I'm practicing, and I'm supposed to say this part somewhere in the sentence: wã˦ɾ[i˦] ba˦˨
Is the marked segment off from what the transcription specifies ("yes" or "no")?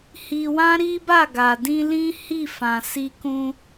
no